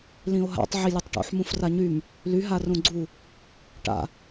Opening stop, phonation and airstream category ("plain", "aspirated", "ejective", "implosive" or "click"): plain